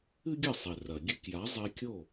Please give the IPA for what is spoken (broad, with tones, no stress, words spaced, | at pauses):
ɨ˥ɡʲɐ˥˩sˤe˩rɐ˩ ɡʲɨ˧kja˩˥zˤe˧kʲo˥˩